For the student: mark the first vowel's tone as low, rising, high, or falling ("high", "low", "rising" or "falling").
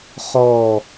falling